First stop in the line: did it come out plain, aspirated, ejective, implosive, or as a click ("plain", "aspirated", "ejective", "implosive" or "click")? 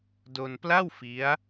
plain